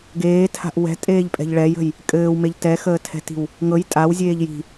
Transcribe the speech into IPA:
ɡ eː tʰ a̤ ʔ w ɛ̤ tʼ eː ʎ pʼ ɛ̤ ʎ ɭ ɛ j ə̤ j | kʼ ɘː w m e ʎ t ɛ x əː tʰ ɛ̤ t i̤ w | ŋ ɤ j tʼ a w zʲ eː ʎ j i̤

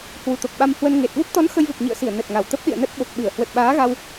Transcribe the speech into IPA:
h w u˨˩ t̪ o˨˩ k̚ ɓ a˧ m h w ə˧ n ŋ e˨˩ t̚ v o˦˥ p̚ t̪ ɔ˨˦ n x ə˧ j v ə˨˩ p̚ ɲ ḭ˧˨ ə̯ s i˧˩ ə̯ n ə˨˩ t̚ ŋ a˨˩ w t̪ ə˦˥ p̚ ɗ ḭ˧˨ ə̯ n ə˦˥ t̚ ɓ o˨˩ k̚ ɓ ɨ˧˩ ə̯ h w ə˨˩ t̚ ɓ aː˨˦ ɣ a˧ w

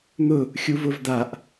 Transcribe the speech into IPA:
n̪ ʊ | xʲ u v ʊ v d̪ a ʔ

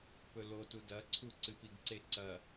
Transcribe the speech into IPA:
p ɵ l o t u d ɐ ǀʰ u ǀ ɨ p i ɡ ǀ e ǀ ɐ

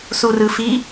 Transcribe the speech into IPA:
s u r ɯ f i

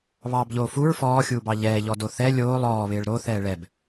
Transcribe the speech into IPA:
β ɑː b ʎ oː f u ɹ f ɔː xʲ uː b ɑ ʎ ɛː ʎ ɔ d o θ ɛ lʲ oː lˠ ɔː β ɪː ɭ ɾ o θ ɛː ɭ ɛ b

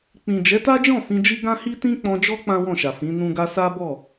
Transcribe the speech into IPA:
k͡p ĩ˨ d͡ʒ ɛ˨˦ t a˦ d͡ʒ ɔ̃˦˨ f ĩ˧ d͡ʒ i˦ ɡ ã˦ h i˦ t ĩ˦ k͡p ɔ̃˧ d͡ʒ ɔ˦ k͡p ã˦ w ɔ̃˦˨ ʃ a˨ f ĩ˨˦ n ũ˦ ɡ a˦ s a˦ b ɔ˦˨

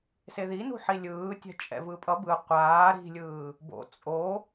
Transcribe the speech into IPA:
s e ð i n ṳ ħ i lʲ ɯː tʲ ɛ̤ t͡ʃʼ ɛ̰ v ɯ pʼ ʌ b ɯ qʷ aː ɾ i̤ lʲ ɯː | b o̰ t͡sʼ o

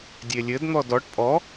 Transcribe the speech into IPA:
dʲ e lʲ ɘ d n̪ ɔ d ɔ ʈ pʼ ɔ

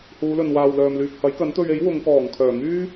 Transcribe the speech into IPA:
h uː˨˧ l ɵ˨ n w aː˨ w l œː˨ m l yː˨ k̚ h ɐ˨˥ j k ɐ˨˥ n t̪ ɵ˧ ɥ e˨˥ j w ʊ˨˧ ŋ k ɔː˨˩ ŋ kʰ œː˨˩ ŋ yː˥

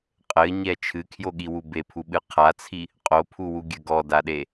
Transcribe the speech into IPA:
qʼ ɘ ɲ ɛ t͡ʃʰ ɨ kʰ j o ɠ i w u b e pʰ u ɓ ɨ qʰ a t͡sʰ i | qʼ o pʰ u w u ɡʲ ɘ ɡ ɔ d a ɗ e

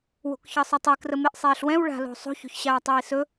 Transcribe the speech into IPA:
w o̤ k ç ɤ sˤ ɵ tˤ e k r ə m e ʔ sˤ eː ɬ w ɛ̃ w ɭ a̤ l o̤ sˤ o̤ ç o̤ ç ɕ aː tˤ iː s ɵ

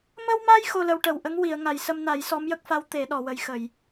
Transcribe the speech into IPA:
m ə˧ w m a˧ j x o˧ l ə˧ w ʈ ə˨˩ w ʔ ə˧˥ ŋ w i˨˩˨ ə̯ ŋ a˨˩ j s ə˧ m n a˨˩˦ j s ɔ˧˥ m j ə˦˥ k̚ f a˧˥ w t̪ e˨˩˦ ɗ ɔ˨˩˨ w ə˨˩ j x ə˨˩˨ j

